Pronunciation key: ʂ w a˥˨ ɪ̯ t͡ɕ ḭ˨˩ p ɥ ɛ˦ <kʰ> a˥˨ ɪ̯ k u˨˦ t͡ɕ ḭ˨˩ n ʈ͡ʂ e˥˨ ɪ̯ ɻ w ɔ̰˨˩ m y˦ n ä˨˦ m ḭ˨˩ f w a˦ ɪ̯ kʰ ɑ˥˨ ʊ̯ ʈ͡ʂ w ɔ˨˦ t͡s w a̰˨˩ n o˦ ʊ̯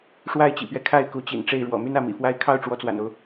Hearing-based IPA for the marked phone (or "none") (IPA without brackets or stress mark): kʰ